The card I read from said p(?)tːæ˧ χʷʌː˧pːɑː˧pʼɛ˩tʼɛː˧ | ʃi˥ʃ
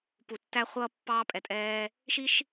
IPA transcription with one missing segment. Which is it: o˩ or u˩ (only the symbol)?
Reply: u˩